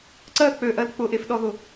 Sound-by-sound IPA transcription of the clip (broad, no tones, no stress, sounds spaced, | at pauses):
ǀ ɜ k͡p ø ʔ ɜ l k͡p ʊ ʔ e f ɗ ɔ ð ʊ